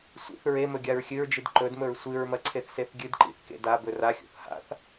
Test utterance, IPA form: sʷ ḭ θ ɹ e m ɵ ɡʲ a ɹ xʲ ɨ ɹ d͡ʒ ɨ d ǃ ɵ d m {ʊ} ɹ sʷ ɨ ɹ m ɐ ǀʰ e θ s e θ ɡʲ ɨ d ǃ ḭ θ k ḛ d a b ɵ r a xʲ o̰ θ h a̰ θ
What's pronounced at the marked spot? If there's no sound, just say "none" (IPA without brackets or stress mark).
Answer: ɵ